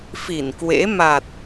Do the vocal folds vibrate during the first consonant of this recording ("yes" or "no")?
no